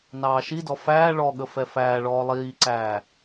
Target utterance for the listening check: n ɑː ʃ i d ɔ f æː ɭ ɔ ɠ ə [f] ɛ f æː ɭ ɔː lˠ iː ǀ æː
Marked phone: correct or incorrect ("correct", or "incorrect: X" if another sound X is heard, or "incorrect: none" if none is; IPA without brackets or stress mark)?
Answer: correct